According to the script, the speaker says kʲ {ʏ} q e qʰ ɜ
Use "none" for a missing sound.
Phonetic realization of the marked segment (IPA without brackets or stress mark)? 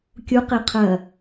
u